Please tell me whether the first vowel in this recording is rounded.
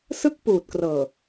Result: no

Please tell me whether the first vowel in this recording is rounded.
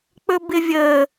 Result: yes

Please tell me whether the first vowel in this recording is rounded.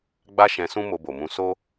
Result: no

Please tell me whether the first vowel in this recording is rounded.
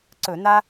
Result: yes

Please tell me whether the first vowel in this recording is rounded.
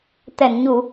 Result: no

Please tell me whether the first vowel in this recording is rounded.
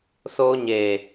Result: yes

